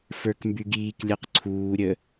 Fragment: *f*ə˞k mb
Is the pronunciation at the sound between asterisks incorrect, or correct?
correct